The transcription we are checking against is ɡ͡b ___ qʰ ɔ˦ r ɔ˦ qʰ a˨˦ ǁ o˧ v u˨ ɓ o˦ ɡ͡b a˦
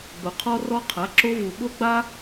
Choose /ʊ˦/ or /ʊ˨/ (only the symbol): ʊ˨